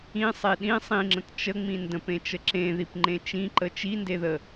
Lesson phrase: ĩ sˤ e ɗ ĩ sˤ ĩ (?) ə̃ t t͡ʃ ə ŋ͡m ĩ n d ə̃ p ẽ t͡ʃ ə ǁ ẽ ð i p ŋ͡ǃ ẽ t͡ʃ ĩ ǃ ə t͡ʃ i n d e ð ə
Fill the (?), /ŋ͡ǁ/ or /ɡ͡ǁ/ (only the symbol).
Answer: ŋ͡ǁ